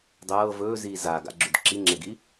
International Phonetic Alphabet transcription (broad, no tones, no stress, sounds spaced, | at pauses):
dˤ ɤː v ɵː z iː z a ɡ a̰ ɡ͡ǁ ʉ d ǁ i ŋ͡ǁ e ɡ i